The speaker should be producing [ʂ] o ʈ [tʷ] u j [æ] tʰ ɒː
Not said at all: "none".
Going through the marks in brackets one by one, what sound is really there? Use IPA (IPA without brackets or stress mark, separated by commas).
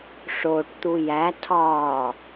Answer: ʂ, t̪, æ